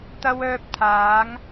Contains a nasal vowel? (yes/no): no